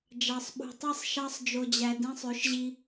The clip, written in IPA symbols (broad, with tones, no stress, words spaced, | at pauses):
d͡ʒɑ˨sˤɓṳ˨tˤi˦˨sˤ ʃɑ˧sˤd͡ʒo˨d͡ʑæ˨ dĩ˧sˤø˨˦ʃʑi˧